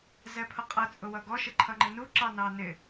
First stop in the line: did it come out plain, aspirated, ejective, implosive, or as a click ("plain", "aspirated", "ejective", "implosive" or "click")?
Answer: aspirated